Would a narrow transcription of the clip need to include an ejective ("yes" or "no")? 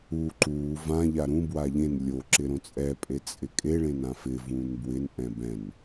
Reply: yes